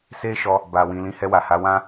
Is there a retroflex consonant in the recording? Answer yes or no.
no